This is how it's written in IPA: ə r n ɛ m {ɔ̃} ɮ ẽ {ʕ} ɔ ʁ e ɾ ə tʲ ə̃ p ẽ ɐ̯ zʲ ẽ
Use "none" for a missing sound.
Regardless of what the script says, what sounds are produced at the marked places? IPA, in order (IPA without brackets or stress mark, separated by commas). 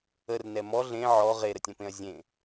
ɔ, ʕ